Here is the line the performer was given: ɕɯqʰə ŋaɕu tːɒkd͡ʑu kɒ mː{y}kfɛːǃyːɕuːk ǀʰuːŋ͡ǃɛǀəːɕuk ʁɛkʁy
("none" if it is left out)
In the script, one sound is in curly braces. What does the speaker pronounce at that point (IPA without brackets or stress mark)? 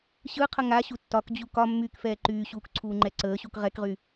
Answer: yː